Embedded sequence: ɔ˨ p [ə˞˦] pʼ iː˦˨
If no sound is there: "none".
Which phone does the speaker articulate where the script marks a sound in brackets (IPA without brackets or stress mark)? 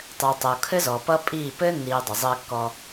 ʌ˦